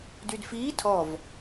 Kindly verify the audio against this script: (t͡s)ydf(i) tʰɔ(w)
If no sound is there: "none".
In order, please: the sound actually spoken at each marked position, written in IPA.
d, iː, v

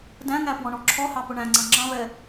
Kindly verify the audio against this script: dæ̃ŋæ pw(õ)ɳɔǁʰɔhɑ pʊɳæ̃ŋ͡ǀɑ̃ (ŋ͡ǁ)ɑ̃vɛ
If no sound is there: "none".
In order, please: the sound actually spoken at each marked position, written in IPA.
ɔ̃, ŋ͡ǁ

